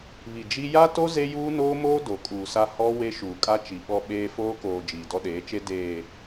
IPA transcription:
βi˨d͡ʒi˦ ja˦to˦ ze˦juː˦noː˦moː˦ do˨kʼuː˨sa˦ hɔ˦ we˦ʃuː˨kʼa˦ t͡ʃi˨ɓɔ˦ ɓeː˦ foː˦koː˨ d͡ʒiː˨dɔ˦ɗeː˨˦t͡ʃe˦ deː˨

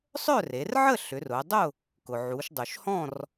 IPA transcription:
sˤœ˥˨re˩˧rʕə˥˨ ɬʏ˩˧rʊ˩˧dˤʊ˥˨ | kʊ˩ʕu˩˧ʃdˤu˩ʃhɔ̃˥˨r

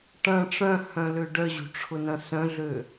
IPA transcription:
ʈɐ̃ ʈ͡ʂœ̃hœ̃lø ɖœʑṳʈ͡ʂʰʊnɐ̃ sœ̃ɮø

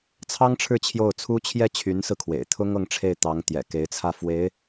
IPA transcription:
t͡sʰɑ˥ŋʈ͡ʂʰɻ̩˥˧ t͡ɕʰjo˥˩ʊ̯t͡sʰu˥t͡ɕʰjɛ˥ t͡ɕʰy˧˥nsɹ̩˧kʰwḛ˨˩ɪ̯t̪ʰʊ˥ŋ ɤ˥˧ŋʈ͡ʂʰe˥˩ɪ̯ t̪ɑ˧˥ŋt̪jɛ̰˨˩ ke˧˥ɪ̯t͡sʰä˥˩fwe˧˥ɪ̯

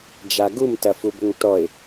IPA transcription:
d͡ʒaɡum tɐfubʏŋtɔɪ̯

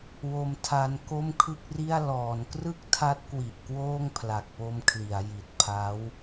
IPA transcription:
wo˧mtʰa˧n ko˥˩mkʰɯ˥˩k̚ri˥˩a̯ lɔː˩˦nkrɯ˥˩k̚tʰa˦˥t̚kwi˨˩ʔ kwoː˥˩ŋpʰla˨˩k̚po˧mkʰli˩˦a̯ ji˨˩t̚pʰa˦˥w

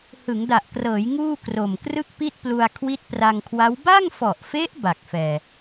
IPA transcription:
hɯ˩˦ŋda˨˩ʔkrɤː˩˦j ŋuː˥˩kro˨˩m krɯ˥˩k̚pi˥˩t̚plu˧a̯ kʰwi˦˥t̚pra˧ŋkʰwa˦˥w ba˥˩ŋfɔ˨˩ʔfe˦˥ʔ ba˨˩k̚fɛː˨˩

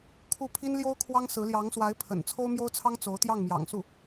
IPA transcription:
kʰu˥˩ pʰi˥nljo˥ʊ̯kʰwɑ˥ŋsɹ̩˧˥ ljɑ˧˥ŋswa˧˥ɪ̯ pʰə̰˨˩n t͡sʰo˥ʊ̯mjo˥ʊ̯t͡sʰɑ˥ŋ t͡so˧˥ʊ̯t̪jɑ˥˩ŋmjɑ̰˨˩ŋ su˥˩

